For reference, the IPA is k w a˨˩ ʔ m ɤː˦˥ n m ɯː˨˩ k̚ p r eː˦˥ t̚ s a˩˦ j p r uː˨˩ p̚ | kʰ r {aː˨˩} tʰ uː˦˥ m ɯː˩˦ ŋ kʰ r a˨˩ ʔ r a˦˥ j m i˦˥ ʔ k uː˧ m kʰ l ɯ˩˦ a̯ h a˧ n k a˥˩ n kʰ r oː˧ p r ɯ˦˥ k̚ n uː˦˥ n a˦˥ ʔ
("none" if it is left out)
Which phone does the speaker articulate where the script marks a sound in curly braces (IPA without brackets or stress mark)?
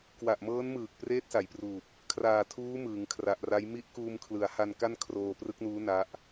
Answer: aː˨˩